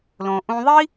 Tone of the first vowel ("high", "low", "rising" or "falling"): low